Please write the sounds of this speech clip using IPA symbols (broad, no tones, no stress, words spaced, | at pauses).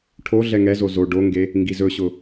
ʈʰo ɮɛŋɛzo zo ɖoŋɡe | ŋɡizɵɕʊ